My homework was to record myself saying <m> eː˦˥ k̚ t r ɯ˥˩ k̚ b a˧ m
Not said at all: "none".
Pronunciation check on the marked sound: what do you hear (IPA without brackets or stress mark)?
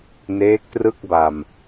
n